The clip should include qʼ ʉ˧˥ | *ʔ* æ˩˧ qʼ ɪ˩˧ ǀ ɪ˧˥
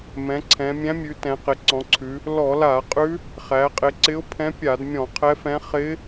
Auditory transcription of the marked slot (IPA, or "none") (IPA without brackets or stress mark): χ